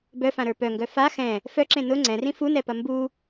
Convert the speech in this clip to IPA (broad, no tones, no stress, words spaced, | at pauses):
bœfãɾə˞ pœŋɡœ fa xɛ̃ | fœǁẽ nʊ ŋ͡ǀɛ̃rĩ funɛpɐ mbu